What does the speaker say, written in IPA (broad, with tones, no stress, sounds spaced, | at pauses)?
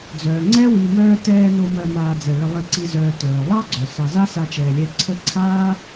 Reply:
d͡z œː˩ ŋ͡ǀ ɛ˥ w i˨ m œː˦ t ɛː˦ n o˦ m ɜ˨ m aː˨ d͡z ɛ˩ ɭ ə˨ lˠ i˨ ǀ i˨ z œː˨ t œː˩ lˠ ɑ˥ ɡ͡ǀ œ˩ s ɑ˨ z a˥ s a˦ t͡ʃ ɛː˨ lʲ ɛ˦ ǀʰ ə˦ ǀʰ aː˥